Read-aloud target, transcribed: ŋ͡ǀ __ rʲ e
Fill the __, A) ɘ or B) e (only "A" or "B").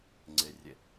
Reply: B